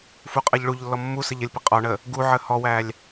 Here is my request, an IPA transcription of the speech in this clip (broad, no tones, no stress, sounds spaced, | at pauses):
f u qʼ ʌ ʎ ɭ u ʎ lː ɔ mː u s ə ʎ ə lʲ p ɪ qʼ ɔ ɳ ə | ɡ u ʕ ə h ɔ w æ lʲ